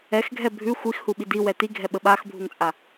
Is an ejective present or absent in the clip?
present